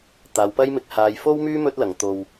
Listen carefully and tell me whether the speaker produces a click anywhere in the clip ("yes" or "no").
no